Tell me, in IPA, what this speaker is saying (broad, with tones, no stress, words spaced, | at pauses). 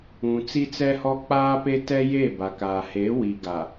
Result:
ũ˨t͡si˦t͡sɛ˦hɔ˦ k͡paː˦pe˦tɛ˦je˦˨ ba˨kaː˨ he˨˦wi˨ ɡa˨